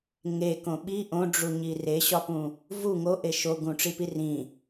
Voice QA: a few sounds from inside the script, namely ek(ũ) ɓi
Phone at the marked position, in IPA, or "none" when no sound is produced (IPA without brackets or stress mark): õ